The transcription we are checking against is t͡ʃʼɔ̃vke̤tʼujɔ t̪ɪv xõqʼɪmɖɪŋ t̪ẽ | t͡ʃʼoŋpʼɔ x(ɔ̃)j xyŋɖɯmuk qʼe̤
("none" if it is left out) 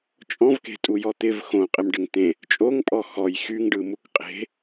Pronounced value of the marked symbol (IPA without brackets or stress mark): ɔ